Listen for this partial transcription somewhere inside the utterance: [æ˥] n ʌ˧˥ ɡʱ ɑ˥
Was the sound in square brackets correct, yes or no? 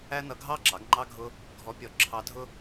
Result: yes